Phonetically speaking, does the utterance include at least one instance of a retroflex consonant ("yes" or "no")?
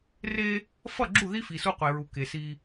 no